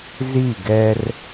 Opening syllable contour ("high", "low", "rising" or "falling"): falling